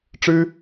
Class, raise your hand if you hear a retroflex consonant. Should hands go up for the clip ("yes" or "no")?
yes